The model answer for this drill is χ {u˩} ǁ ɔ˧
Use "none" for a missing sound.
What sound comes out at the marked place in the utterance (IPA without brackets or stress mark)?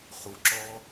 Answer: u˩